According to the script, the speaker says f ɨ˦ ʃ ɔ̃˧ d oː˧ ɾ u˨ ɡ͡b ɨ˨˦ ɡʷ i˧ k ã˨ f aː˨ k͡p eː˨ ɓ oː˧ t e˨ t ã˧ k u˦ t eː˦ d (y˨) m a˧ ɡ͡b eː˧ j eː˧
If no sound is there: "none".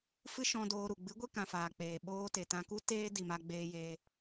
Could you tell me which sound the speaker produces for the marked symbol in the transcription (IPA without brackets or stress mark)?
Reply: i˨